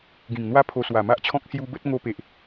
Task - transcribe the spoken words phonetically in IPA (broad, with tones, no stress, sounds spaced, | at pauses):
ɡ ĩ˨˩ ŋ n̪ w a˦ pʰ o˧ s w a˨˩ m a˦ ʔ t͡ɕʰ ɔ̃˦ k̚ s j u˧ b ə˦ t̚ ŋ o˧ p e˨ ʔ